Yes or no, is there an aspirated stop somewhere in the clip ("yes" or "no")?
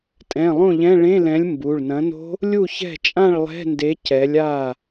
no